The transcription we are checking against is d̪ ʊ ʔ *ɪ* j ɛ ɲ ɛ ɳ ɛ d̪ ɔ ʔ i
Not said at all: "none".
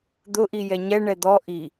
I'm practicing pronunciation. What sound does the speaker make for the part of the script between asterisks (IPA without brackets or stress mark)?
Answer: i